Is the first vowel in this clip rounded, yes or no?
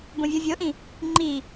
yes